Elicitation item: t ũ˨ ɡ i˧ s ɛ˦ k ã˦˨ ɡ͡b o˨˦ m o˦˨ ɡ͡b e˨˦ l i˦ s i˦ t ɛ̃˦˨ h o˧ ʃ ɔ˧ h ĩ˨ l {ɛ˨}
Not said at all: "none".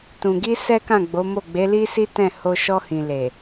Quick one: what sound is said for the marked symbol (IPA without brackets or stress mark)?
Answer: e˨